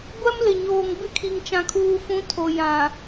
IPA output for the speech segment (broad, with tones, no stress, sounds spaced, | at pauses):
ɡʷ ɛ˦ m l ɪ˨ ɲ oː˨ ŋ b ɪ˦ kʰ i˨ ŋ t͡ʃ ã˨ kʰ uː˨ f ũ˨˦ tʰ o˨ j ã˨